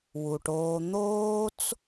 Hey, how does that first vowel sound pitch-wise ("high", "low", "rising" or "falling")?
low